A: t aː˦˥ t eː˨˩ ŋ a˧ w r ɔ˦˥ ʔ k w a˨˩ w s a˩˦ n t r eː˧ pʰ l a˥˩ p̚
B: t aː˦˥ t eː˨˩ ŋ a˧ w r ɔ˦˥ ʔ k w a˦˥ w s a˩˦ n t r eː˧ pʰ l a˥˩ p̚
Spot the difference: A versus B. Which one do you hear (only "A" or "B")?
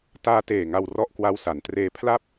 B